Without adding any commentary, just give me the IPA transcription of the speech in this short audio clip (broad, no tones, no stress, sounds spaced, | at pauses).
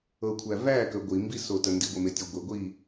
ɤ kʷʰ æ v æ k ə ɡʷ i m b i s o t ə n d i ɡʷ ɪ m e tʲ ɔ ɡʷ ɪ ɡʷ i